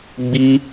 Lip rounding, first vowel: unrounded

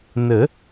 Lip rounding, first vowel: unrounded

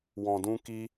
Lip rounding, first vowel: rounded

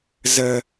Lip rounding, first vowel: unrounded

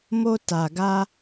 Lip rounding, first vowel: rounded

